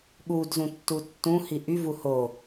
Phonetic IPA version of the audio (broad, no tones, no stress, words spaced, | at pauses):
ɠudzũ tːutːũ hiʔyvu ho